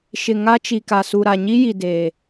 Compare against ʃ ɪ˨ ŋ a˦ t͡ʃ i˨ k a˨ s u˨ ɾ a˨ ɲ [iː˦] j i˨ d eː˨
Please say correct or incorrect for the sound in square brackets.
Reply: incorrect: i˦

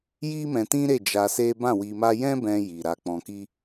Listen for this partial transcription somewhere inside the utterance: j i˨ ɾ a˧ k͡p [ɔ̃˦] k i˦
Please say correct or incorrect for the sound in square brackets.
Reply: incorrect: ɔ̃˧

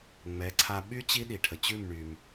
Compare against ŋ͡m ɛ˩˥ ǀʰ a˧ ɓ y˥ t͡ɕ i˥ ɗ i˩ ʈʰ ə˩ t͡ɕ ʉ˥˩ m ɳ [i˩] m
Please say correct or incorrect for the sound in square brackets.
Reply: incorrect: y˩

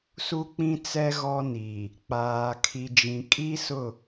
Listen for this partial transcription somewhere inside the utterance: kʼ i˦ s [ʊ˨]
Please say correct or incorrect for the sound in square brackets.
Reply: incorrect: ʊ˦˨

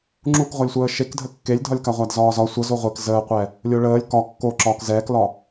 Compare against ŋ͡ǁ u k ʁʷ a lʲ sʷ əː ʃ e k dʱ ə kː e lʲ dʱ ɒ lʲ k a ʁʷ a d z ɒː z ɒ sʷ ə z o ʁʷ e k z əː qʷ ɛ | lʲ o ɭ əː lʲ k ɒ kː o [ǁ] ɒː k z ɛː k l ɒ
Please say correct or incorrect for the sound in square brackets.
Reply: correct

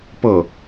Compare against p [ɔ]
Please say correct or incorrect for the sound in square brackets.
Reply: incorrect: ɤ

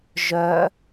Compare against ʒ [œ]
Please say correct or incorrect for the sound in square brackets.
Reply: correct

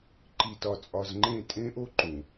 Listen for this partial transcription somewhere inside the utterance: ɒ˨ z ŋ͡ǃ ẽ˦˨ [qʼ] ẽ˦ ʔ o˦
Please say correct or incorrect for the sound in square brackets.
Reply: incorrect: tʼ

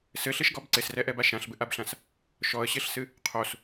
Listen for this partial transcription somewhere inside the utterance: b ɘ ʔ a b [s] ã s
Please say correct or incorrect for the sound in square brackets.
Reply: incorrect: ɬ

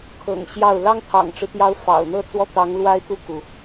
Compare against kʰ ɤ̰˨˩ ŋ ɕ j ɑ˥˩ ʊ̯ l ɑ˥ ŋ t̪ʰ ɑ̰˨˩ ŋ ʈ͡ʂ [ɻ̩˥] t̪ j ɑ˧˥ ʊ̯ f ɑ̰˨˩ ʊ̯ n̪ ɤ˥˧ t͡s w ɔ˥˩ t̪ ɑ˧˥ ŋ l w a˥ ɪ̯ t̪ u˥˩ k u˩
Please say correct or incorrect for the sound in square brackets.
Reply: incorrect: ɻ̩˦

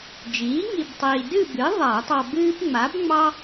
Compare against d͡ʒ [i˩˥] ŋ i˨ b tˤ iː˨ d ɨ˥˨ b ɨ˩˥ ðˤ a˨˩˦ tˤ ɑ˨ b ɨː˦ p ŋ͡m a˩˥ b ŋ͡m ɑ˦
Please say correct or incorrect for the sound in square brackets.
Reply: incorrect: iː˩˥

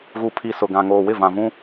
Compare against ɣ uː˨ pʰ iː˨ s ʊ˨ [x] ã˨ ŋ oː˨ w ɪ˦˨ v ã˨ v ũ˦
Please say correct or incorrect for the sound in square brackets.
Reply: incorrect: ɡ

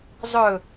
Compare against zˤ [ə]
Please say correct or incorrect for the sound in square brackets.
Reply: incorrect: ɵ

